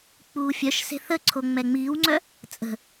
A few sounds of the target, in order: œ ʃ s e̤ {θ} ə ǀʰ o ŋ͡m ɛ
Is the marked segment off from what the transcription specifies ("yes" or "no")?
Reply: no